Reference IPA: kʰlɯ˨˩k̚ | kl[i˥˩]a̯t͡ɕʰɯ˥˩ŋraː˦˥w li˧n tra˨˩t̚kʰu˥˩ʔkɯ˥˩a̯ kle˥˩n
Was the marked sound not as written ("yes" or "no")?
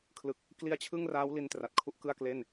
yes